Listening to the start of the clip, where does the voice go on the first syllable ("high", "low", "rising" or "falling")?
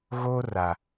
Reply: high